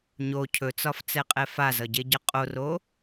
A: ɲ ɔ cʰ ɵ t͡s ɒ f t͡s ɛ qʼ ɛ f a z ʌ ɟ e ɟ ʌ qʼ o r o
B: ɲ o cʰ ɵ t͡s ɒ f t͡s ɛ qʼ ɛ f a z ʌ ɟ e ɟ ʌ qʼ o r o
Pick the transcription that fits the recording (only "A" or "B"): B